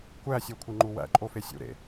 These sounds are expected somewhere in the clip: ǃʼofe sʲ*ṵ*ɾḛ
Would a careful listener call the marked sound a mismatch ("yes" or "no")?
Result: no